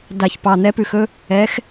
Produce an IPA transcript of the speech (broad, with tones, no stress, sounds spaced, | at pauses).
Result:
d a˨˩ ç p ɑ˨˩ n̪ ɛ˨˥ p ʉ˨˩ x ɵ˦ | ɛ˨˥ x